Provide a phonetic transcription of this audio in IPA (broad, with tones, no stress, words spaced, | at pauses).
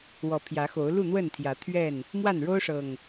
wɔ˨˦pʰjä˨˦xo˨˦ʊ̯ lu˥˨n̪wə˥˨nt̪ʰjä˨˦ t̪ʰɥɛ˥˨n | mwa˥˨n ɻo˦ʊ̯ʂɤ˨˩ŋ